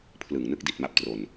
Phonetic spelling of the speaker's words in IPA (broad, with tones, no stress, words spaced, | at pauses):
pʰlɯ˨˩ŋnɯ˥˩k̚ di˨˩t̚ma˦˥p̚ tro˧n